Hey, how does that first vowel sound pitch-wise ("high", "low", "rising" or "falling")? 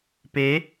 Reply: rising